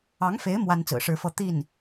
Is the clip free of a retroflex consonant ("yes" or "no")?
no